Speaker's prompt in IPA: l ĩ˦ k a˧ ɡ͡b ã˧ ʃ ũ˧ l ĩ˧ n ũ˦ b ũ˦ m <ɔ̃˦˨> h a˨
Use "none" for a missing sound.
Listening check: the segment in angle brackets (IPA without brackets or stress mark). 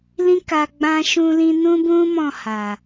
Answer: ɔ̃˦˨